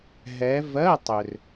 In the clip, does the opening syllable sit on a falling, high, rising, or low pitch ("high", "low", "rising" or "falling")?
rising